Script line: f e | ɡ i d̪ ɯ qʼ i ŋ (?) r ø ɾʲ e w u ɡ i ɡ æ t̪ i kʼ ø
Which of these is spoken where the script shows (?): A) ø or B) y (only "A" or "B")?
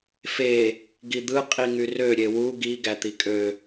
B